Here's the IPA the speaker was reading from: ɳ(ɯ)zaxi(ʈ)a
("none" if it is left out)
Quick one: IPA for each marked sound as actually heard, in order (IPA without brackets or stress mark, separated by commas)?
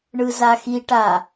ɯ, ʈ